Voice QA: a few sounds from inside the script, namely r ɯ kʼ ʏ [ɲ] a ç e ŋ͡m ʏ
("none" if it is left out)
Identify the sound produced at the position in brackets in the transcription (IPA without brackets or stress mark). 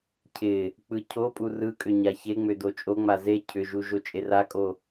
ɲ